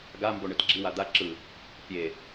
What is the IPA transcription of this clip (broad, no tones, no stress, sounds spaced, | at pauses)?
ɡ a m b o ɳ ɯ t ɡ͡ǁ i w a d̪ a ǁ ɯ | pʲ e